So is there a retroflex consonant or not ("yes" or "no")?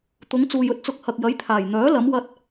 no